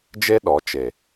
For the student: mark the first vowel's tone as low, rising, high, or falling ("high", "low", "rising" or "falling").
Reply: high